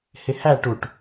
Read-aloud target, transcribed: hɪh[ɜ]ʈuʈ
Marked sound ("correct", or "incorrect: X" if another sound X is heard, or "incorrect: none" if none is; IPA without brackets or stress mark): incorrect: æ